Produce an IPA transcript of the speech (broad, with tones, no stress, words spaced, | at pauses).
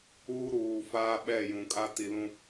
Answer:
uː˦ɾuː˨ faː˦ɓɛ˦˨jũ˨kʼa˦ ti˨lũ˨